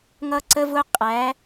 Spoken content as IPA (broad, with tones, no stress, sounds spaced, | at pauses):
ŋ ʌ˦ ǀ ə˦ v ʊ˦ qʼ æ˨˦